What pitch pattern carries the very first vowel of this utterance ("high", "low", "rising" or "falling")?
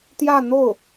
falling